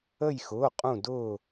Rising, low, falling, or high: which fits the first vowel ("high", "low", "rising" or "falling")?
falling